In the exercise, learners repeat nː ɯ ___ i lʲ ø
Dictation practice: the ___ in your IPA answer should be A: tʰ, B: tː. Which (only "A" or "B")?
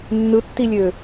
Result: B